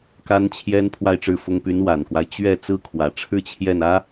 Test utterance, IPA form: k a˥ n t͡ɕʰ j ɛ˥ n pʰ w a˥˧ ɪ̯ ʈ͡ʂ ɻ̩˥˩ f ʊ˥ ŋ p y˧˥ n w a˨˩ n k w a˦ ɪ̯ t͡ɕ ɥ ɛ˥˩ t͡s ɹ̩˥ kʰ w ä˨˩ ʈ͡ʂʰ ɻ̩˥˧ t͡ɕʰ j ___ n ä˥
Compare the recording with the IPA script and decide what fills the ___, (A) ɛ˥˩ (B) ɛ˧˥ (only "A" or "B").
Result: A